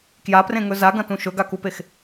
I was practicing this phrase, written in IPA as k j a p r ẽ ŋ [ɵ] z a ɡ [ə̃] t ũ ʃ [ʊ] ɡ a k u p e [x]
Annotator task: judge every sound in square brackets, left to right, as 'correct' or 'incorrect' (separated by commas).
correct, incorrect, incorrect, correct